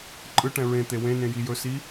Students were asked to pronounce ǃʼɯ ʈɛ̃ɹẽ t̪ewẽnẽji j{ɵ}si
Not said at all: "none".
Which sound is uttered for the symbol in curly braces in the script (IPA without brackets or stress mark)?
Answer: ɵ